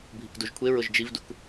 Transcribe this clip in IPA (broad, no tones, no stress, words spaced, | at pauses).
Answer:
bʱikduʒkʷʰeɹʊʒ d͡ʒivduk